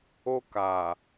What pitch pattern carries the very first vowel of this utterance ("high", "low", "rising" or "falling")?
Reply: high